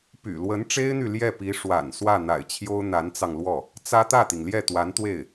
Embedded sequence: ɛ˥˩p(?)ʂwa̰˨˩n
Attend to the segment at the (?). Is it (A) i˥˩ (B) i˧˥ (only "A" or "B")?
B